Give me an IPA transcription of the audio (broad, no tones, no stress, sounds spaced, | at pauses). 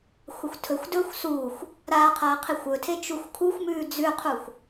xʷ ɐ xʷ tʰ ɵ xʷ d ɵː xʷ s uː xʷ | ɾ aː qʰ ɐː qʰ i xʷ ɵ tʰ e t͡ʃ u xʷ kʰ u xʷ m ʉː d͡z ʉ qʰ u xʷ